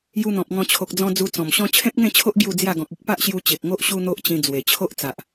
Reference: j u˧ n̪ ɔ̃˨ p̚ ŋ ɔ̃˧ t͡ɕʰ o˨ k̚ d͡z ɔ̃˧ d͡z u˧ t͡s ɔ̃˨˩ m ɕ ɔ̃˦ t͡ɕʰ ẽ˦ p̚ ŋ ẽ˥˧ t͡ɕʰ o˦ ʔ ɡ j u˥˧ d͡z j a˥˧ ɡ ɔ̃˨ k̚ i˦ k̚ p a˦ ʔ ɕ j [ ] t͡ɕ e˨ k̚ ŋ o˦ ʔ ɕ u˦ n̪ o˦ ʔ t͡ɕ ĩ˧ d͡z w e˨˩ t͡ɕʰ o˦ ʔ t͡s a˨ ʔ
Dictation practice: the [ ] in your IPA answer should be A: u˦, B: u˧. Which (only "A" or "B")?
B